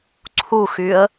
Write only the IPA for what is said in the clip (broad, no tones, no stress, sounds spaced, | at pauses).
ǀʰ u x y ə̯